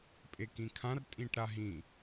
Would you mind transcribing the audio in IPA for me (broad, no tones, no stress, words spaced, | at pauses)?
pʼekĩkʰãr tʼĩʈɾaɦĩ